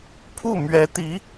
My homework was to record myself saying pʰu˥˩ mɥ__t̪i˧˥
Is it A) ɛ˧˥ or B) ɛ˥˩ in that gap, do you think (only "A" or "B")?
A